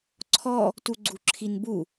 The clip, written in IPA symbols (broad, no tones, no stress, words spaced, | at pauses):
ǀʰɔ | tuɡ͡ǀuǁʰinbu